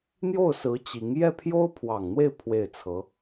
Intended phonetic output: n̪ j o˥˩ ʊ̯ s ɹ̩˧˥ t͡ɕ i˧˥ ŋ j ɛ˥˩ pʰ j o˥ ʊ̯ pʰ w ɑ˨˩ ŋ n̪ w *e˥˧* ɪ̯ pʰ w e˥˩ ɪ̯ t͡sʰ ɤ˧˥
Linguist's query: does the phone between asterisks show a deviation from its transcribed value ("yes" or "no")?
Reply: no